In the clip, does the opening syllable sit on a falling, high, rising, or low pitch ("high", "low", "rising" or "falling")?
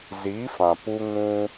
rising